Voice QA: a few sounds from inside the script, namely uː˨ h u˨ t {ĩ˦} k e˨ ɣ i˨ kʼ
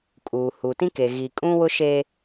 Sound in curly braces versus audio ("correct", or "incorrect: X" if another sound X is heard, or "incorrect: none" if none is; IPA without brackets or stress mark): correct